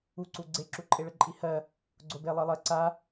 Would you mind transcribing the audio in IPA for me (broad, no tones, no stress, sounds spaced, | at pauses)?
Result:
u ǀ u ɡ͡ǀ e ǁ u ǃʼ e ɭ ə ǃʼ i h ɜ | ɡ͡ǀ o b e lˠ ɜ lˠ ɜ ǀ a